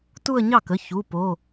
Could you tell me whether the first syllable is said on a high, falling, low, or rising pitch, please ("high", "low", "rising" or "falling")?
falling